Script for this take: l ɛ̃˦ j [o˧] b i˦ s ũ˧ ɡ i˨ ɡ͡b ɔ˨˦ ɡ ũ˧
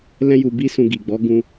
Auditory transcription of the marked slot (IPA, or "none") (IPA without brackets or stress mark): u˧